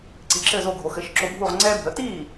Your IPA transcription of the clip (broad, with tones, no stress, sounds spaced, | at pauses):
ǀ i˩˥ ǁ ɘː˥˩ z o˥˩ ɡʱ o˩˥ x ɘ˩˥ ʃ ǁ o˧ bʱ u˥˩ ʁ ŋ͡ǀ ɛː˥ bʱ ə˩˥ t iː˥˩